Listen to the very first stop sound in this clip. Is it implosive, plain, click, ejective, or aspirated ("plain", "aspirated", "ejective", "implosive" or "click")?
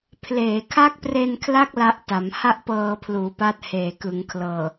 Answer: aspirated